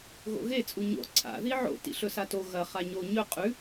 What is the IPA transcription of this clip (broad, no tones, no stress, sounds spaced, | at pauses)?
ɣ o̰ ɣ e t͡sʼ u ɲ o̰ ǀʰ a̰ ð i ʕ o̰ t ḭ ɬ ɵ s a t o ɣ ɐ χ a ɲ o ɲ ɵ qʼ ʉ